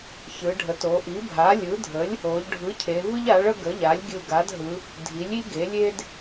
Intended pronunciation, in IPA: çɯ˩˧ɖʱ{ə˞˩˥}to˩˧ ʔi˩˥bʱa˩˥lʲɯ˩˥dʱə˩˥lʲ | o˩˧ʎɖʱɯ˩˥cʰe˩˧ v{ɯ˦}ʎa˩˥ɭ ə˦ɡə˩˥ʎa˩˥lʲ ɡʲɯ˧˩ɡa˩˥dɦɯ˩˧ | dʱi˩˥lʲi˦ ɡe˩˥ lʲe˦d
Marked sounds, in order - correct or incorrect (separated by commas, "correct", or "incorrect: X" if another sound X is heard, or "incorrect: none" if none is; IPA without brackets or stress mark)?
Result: incorrect: ə˩˥, correct